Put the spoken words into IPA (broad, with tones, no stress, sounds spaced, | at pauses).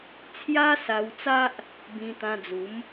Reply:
t͡sʰ j a˦ s a˧ w t͡s a˦ ʔ | b ĩ˧ t̪ ã˧ d͡z u˨˦ m